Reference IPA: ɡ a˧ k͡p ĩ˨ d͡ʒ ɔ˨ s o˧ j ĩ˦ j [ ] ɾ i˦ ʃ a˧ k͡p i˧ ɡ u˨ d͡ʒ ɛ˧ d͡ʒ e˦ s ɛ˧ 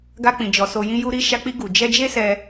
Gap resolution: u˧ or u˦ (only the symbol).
u˦